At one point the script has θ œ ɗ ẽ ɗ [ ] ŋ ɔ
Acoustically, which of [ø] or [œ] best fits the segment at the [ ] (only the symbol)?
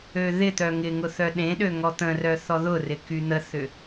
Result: ø